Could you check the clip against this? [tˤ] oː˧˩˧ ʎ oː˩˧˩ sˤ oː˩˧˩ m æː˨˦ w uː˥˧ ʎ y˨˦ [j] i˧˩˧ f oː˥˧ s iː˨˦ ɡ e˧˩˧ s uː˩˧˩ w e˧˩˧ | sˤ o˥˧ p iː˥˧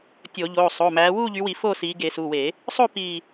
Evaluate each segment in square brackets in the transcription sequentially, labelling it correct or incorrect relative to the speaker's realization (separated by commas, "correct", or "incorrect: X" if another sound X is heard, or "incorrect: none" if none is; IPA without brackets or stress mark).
incorrect: tʲ, incorrect: w